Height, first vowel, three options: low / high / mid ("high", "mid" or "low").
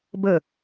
mid